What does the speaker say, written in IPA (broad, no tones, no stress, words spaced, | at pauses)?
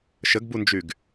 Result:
ʃəɡbund͡ʒyɡ